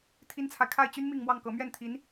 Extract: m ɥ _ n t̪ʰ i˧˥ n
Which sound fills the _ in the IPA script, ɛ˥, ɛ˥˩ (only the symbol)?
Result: ɛ˥˩